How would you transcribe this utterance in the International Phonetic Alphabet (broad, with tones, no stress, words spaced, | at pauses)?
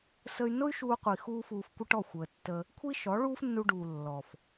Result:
sə˧y̯ nʊ˦y̯ʃuː˧qʷi˨xuː˧ fuː˧fkʷə˦ʈɔ˦˨ xʷəː˨tːəː˧ | kʷʰi˦ʃɔ˨˦ ɭuː˦fnːu˧ɖuː˨ lːɔ˨f